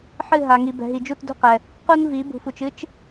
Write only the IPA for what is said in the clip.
ħ ɨ˦˨ ɦ a˨ ŋ i˨ b ɛ̤˨ ɦ i˨ d͡ʒ u˦˨ t d ṳ˦ q ɛ˨ | q u˦ n v i˨˦ b ṳ˨ f u˨ t͡ʃ ɨ˦ t͡ʃ

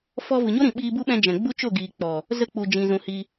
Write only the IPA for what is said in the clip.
f ɔ˧ v ɨ˨ ɲ o˦ ɾ ĩ˨ ɓ iː˧ b u˦ ɓ ɛ̃˧ d͡ʒ ɛ̃˨ ɡ͡b u˦ t͡ʃ o˦˨ ɡ iː˨ k͡p ɔ˨ | z ə˦ k͡p u˨ d͡ʒ ĩ˨ z ũ˨ h i˧

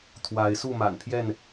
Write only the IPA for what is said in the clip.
t̪ʰ w a˨˦ ɪ̯ s u˥˨ m a̰˨˩ n pʰ j ɛ˥˨ n

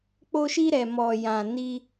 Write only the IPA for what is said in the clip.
k͡p o˧ ʃ i˧ ɾ ɛ˨ m ɔ˨ j ã˨ n i˧

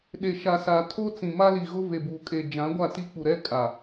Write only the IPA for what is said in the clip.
ɗ e˨ ʃ a˨ s a˨ tʰ o˦ t͡s ĩ˨ m a˦ l i˨ ɣ ʊ˦ v e˨ b uː˨ kʼ e˨ d͡ʒ ã˨˦ ɡʷ a˦˨ t i˦ k͡p u˨ ɾ ɛ˦ kʼ a˨

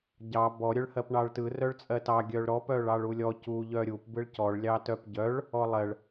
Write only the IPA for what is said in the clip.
ɟ ɑ b ɔ ɾʲ œ ɭ h ɜ p ɳ ɑ ɭ t ɯ r œ ɭ t͡sʼ ɜ t ɑ ɡʲ œ ɭ ɾ ɔ p œ ɭ ɑ ɭ u lʲ ɔ c u ʎ œ ɾʲ u p b ɯ ɭ c ɔ ɭ lʲ ɑ t œ p ɟ œ ɭ | ɔ lˠ ɜ ɭ

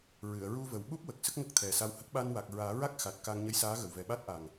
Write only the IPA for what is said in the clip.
ɹ ɨ˨˩˨ ə̯ ɹ u˧ v ə˨˩ w ɓ u˦˥ p̚ w ə˨˩ k̚ s ə˦˥ k̚ ŋ ə˦˥ k̚ t̪ʰ ɛ˨˩ s a˧ w h ə˦˥ k̚ ɓ a˧ n w a˨˩ k̚ ɹ aː˨˩˦ ɹ a˦˥ k̚ x a˨˩ t̚ k a˧ ŋ ɲ ə˧˥ j s aː˧˥ ɣ ə˨˩ w v ɛ˨˩ ɓ a˦˥ t̚ ʔ a˨˩ ŋ

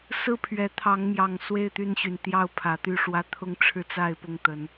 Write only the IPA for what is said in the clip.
s ɹ̩˥˨ pʰ ɥ ɛ˨˦ t̪ʰ ɑ˨˦ ŋ m j ɑ˨˩ ŋ s w e˥˨ ɪ̯ t̪ y˥˨ n ɕ y˩ n t̪ j ɑ˥˨ ʊ̯ pʰ ä˨˦ t̪ y˥˨ ʂ w ä˦ t̪ʰ ʊ˦ ŋ ʈ͡ʂʰ ɻ̩˥˨ t͡s a˥˨ ɪ̯ p ʊ˥˨ ŋ t̪ ə˨˦ n

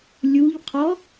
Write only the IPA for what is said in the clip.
lʲ u ʎ qʰ ɔ

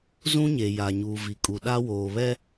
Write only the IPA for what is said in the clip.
z ũ˦ ɲ e˨ j a˨ ɲ uː˨ v i˨ kʼ u˨ ɗ a˦ w oː˨ β ɛ˦

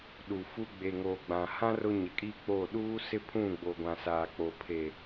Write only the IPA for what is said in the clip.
ɗ u˨ f u˦ ɡ͡b e˨ ŋ oː˨ ɡ͡b ã˨ h ã˦ r ʊ˦ ɲ ɪ˨˦ kʼ iː˦ k͡p oː˦˨ ɗ uː˦ s ɪ˦ pʰ ũ˦˨ ɡ͡b o˨ ɡʷ ã˨ s aː˨ k͡p o˨ pʰ e˨

